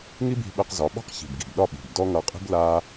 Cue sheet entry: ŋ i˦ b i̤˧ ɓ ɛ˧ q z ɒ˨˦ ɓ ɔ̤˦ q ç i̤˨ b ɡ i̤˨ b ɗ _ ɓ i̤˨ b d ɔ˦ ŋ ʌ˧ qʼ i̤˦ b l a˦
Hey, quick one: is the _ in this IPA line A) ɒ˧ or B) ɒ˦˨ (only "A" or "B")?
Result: B